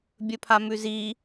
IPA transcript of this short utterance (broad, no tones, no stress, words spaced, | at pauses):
bʲɵpʰamʉzi